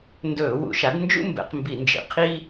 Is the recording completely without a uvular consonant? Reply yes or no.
no